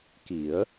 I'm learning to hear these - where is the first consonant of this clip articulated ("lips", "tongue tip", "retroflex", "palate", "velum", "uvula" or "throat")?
velum